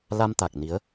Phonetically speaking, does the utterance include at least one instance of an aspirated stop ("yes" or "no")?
no